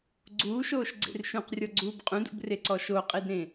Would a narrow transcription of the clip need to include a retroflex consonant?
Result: no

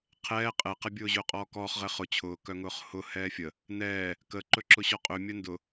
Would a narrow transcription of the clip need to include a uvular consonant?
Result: yes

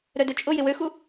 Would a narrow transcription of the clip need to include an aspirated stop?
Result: no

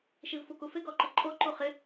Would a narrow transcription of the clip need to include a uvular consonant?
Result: yes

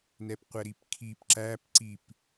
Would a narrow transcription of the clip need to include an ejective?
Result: no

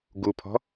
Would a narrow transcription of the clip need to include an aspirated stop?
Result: yes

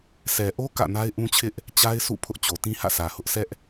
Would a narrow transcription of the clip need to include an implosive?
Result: no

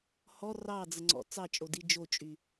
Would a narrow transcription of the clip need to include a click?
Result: yes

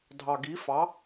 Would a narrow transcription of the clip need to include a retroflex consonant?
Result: no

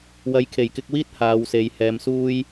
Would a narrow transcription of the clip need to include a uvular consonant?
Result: no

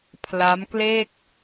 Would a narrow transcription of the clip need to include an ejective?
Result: no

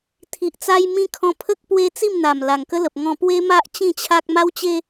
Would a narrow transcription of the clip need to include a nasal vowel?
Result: yes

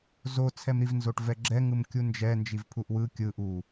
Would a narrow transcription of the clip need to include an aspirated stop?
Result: yes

